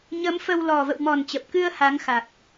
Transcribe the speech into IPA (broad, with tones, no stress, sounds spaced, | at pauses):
ɲ ə˨˦ m f ə˧ w l ɔ˨˩ v ə̰˧˨ w m ɔ˨˩ n t͡ɕ ə˨˩ p̚ k ɨ˧ ə̯ h a˨˦ ŋ x a˨˩ k̚